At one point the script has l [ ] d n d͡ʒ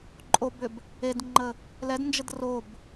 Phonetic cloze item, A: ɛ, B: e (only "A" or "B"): A